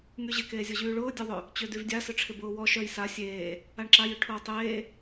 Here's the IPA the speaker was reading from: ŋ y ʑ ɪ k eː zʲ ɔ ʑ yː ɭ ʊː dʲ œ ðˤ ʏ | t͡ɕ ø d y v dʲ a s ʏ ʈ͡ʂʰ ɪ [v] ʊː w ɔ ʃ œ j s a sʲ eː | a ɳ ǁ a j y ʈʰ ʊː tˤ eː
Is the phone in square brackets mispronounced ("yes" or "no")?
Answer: yes